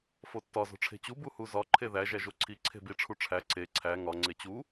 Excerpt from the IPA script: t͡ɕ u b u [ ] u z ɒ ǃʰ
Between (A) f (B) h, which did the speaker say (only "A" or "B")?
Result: B